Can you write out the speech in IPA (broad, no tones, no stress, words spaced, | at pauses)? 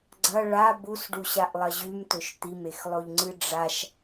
ɡ͡ǀɐ ɭa busɖuɕaʔlˠɐ ʑʉmtɵʃ t̪imexlˠoʎŋ͡ǀɨ ɖ͡ʐaʃ